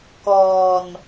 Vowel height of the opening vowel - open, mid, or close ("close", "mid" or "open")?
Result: mid